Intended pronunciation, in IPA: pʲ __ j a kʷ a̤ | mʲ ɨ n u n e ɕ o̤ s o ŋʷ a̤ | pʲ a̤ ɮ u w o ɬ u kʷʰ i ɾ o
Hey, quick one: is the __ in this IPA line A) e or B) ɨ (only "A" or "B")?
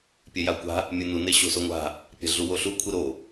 A